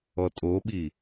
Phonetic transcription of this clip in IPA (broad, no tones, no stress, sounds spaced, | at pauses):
ɔ tʼ o ɓ i